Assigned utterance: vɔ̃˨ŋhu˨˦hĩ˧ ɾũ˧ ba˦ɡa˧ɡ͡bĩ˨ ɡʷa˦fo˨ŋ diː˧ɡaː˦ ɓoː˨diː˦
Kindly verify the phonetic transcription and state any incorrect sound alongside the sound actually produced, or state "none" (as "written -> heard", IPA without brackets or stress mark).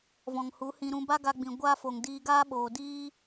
none